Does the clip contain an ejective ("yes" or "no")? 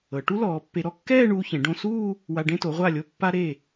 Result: no